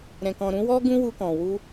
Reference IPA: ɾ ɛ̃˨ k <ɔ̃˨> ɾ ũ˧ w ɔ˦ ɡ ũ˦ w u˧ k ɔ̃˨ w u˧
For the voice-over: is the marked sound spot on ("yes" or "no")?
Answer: yes